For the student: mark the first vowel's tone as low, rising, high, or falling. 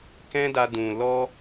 high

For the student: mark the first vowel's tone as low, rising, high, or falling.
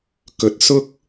rising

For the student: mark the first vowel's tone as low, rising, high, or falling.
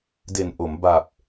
low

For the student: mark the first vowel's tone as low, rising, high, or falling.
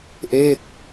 falling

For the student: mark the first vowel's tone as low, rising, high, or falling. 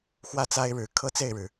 falling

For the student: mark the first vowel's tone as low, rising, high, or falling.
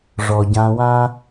low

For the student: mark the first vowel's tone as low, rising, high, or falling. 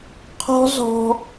high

